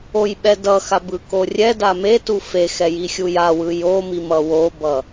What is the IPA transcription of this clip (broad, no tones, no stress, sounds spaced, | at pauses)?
o j ɓ ɛ d ʌ x a b ɯ k o rʲ ɛ d a m e t u f e x ɛ j i xʲ u j a w ɯ j o m i m ʌ w o b ʌ